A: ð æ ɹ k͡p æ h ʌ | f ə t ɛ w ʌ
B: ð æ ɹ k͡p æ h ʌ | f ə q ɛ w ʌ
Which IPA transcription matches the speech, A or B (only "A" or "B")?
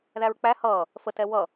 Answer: A